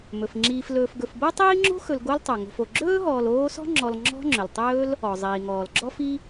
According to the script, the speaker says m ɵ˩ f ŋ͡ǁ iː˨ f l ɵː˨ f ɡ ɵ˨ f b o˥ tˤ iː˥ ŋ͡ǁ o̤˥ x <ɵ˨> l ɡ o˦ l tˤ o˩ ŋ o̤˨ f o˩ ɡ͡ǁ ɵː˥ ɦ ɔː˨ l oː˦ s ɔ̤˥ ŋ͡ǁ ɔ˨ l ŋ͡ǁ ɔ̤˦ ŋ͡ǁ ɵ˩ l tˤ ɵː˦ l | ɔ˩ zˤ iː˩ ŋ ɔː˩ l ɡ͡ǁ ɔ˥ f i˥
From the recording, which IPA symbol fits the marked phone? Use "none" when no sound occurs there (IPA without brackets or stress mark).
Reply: ɵ˨